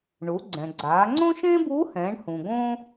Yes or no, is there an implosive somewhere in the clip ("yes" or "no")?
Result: no